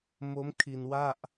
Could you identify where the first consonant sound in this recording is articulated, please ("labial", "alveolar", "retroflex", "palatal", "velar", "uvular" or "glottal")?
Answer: labial